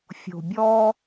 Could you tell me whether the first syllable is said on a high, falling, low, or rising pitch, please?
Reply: low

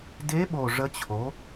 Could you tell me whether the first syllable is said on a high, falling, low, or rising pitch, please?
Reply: rising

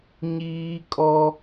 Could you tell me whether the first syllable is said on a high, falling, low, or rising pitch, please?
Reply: high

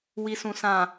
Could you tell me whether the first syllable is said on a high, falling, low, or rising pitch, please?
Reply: low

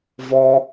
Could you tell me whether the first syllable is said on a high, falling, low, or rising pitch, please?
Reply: high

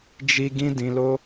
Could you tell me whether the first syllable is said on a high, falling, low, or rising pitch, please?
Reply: high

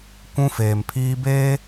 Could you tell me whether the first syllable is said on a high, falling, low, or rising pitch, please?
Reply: high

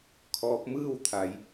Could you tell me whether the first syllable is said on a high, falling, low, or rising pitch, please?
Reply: rising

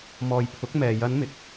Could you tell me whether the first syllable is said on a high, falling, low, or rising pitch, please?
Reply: low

